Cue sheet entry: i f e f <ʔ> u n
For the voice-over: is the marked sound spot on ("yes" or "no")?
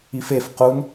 no